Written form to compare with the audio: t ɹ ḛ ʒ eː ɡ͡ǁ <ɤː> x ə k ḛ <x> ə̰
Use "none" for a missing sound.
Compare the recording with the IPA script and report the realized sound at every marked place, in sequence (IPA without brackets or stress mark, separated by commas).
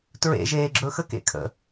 ɵː, kʰ